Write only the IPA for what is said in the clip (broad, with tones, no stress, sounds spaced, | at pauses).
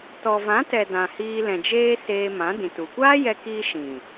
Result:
t ɔ˨ v ã˨˦ t ɛ˨ d ã˨ h iː˧ l ɛ̃˨ d͡ʒ eː˦ s eː˧ m ã˨˦ d ĩ˨ t u˨ kʷ aː˦ j ɛ˧ k iː˧ ʃ ĩ˨